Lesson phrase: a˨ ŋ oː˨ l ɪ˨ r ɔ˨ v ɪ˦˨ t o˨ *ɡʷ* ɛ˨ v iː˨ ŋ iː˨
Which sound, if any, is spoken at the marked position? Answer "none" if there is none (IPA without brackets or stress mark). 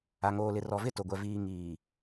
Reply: ɡʷ